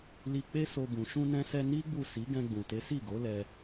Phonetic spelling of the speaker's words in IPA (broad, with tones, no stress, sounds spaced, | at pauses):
l i˧ k͡p e˦ s o˧ b ũ˨ ʃ ũ˧ n ɛ̃˧ s ɛ˧ n i˦ ɡ͡b u˦˨ s i˨˦ ɡ ɛ̃˧ ɡ͡b ũ˨ t e˨˦ s i˦˨ ɡ o˨˦ l ɛ˧